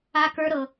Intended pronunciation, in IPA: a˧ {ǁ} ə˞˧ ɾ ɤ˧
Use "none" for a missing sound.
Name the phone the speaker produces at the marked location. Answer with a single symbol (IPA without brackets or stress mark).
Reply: k